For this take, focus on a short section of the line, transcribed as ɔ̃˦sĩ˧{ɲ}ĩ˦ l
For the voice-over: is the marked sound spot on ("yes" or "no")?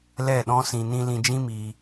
no